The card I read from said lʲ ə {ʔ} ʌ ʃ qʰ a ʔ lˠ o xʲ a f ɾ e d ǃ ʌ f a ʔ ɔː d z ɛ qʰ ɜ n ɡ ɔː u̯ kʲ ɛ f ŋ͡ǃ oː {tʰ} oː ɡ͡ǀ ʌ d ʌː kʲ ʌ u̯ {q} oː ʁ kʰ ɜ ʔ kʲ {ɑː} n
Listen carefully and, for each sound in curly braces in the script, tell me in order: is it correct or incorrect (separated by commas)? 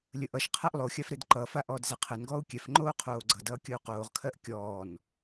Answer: correct, incorrect, correct, incorrect